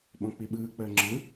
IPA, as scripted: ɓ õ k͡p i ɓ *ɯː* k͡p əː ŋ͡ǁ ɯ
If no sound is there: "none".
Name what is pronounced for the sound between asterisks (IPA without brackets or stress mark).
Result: ɯː